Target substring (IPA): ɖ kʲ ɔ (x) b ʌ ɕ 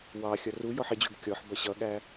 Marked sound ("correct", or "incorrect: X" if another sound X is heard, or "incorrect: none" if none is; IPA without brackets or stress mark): incorrect: ħ